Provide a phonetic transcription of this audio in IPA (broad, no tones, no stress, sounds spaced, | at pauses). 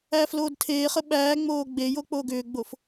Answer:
æː f l oː d tʰ eː χ ə ɓ æː ŋ͡m oː ɡ͡b e j o k͡p oː ɡ ʏː ɡ͡b o f